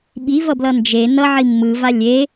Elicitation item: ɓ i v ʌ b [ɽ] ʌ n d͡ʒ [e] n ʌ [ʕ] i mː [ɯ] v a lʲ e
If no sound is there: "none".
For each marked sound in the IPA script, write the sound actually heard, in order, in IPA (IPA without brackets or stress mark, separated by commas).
l, e, ʕ, ɯ